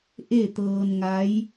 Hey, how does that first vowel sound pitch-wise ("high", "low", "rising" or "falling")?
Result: falling